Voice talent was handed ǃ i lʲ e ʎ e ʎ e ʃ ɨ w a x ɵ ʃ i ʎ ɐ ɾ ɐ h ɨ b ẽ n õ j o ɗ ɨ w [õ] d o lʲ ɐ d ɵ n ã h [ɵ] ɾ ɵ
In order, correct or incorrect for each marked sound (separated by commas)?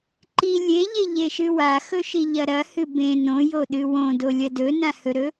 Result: correct, correct